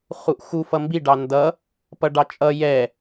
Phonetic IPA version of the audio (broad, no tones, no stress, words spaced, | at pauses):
χuʔxu fʌmbiɖɑ ndʌ | pʌɖɑt͡ʃʼʌ jɛ